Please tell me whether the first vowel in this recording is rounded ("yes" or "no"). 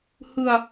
no